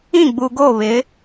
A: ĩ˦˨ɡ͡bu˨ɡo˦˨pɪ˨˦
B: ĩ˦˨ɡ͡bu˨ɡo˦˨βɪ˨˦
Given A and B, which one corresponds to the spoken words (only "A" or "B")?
B